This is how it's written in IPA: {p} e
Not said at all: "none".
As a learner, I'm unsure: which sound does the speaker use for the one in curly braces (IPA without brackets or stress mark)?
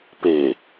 p